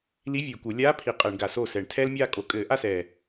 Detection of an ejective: present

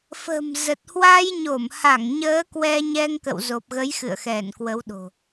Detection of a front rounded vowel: absent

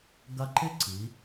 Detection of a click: present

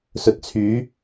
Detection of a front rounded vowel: present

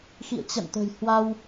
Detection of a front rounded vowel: absent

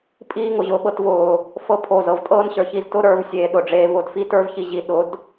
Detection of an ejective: present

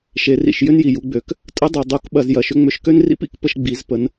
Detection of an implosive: present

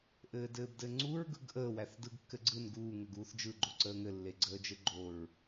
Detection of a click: present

